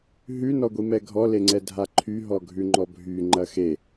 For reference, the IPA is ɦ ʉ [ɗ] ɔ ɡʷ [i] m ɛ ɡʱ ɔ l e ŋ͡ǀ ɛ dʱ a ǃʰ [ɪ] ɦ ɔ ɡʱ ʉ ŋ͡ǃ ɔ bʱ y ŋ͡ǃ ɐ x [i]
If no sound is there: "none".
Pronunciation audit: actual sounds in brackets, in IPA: n, i, y, e

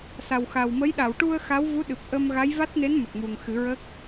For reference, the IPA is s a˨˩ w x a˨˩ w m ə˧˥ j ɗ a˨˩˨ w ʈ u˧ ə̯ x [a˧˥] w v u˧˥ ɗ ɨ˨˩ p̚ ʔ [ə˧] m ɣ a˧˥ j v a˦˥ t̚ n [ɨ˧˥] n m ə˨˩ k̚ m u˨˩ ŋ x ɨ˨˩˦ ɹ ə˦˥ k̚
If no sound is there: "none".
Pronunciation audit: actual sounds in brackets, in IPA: a˧˥, ə˧, e˧˥

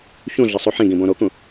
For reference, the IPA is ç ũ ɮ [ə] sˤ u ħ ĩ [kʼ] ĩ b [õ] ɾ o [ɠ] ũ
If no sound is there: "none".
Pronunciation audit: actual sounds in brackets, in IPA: ə, ɡ, õ, k

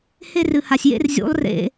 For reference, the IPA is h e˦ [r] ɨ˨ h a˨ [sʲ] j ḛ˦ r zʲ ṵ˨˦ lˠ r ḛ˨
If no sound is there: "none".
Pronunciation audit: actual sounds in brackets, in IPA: r, sʲ

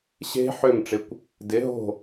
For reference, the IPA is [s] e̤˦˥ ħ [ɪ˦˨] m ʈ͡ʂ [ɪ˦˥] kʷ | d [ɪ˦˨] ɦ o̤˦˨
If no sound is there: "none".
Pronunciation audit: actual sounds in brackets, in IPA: ɕ, ʏ˦˨, ɪ˨˦, ɪ˨˦

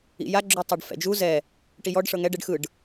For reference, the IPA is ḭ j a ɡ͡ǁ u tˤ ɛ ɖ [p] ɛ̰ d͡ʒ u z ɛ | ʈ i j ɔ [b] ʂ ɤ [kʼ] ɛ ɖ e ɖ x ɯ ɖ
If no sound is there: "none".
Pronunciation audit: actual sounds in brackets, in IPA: f, ɖ, ŋ

